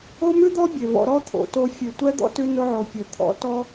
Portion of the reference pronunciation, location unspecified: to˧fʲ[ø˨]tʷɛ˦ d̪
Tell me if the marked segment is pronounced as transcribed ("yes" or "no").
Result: no